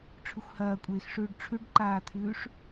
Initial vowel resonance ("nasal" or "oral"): oral